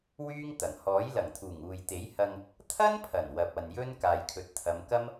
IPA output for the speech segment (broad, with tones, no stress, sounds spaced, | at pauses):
w yː˥ ŋ t̪ ɐ˨˩ ŋ h ɔː˨˥ j l ɐ˨˩ ŋ t̪ʰ uː˨˩ ŋ uː˨ j t̪ e˨˥ j h ɐ˧ ŋ | t̪ʰ ɐ˥ n pʰ ɐ˨˩ n w ɐ˨ p̚ ɐ˨ n j ɵ˥ n k aː˨ j kʰ ɵ˨ t̚ t̪ʰ ɐ˨˧ m k ɐ˥ m